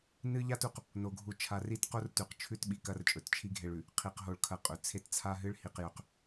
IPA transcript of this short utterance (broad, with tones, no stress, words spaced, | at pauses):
nɨ˦ʎa˦tu˨q | no˨ɡʱu˨ t͡ʃʰa˨ri˦tqo˦r tʉ˨qt͡ʃʰʉ˦t ɓi˨kɐ˦rt͡ʃʼɵ˨t t͡ʃʰi˦ɡʱe˨ɭʉ˨ | qʰi˨q ɦo˦ɭkʰɐ˦˨qʼɵ˨ t͡sʰe˦tt͡sʰa˦ɦɨ˦ɭhi˨q jɵ˨q